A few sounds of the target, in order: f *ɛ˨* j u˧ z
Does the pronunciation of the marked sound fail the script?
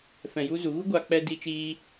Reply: yes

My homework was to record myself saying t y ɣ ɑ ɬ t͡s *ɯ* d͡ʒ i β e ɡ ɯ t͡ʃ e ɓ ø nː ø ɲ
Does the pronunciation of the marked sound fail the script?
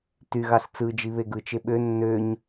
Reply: no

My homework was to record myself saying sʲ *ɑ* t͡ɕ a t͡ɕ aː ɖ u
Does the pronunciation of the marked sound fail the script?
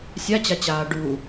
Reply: yes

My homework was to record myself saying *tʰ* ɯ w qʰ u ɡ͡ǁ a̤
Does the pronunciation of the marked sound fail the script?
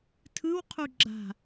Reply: no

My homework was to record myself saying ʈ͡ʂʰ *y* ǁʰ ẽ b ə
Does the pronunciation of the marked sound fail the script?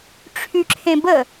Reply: no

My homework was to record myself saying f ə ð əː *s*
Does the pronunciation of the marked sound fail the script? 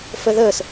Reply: no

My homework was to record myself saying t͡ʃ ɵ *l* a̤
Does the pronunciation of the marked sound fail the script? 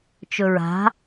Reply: yes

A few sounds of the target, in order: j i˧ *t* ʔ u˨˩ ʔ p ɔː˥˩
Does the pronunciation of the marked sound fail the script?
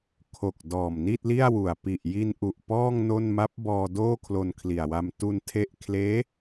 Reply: yes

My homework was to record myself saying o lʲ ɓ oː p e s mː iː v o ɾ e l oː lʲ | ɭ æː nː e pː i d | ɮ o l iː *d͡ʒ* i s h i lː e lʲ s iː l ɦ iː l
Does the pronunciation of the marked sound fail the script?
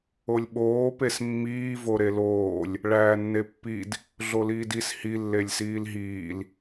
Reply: yes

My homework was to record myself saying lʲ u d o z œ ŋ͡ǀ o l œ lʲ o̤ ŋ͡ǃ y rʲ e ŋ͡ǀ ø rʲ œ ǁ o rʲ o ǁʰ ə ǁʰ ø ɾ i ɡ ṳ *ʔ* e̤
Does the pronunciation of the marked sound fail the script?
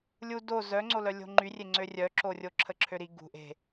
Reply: no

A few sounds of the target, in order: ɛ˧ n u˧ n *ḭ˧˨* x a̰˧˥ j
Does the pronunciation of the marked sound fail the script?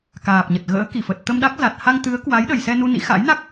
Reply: yes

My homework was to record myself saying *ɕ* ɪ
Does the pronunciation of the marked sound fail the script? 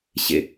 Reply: no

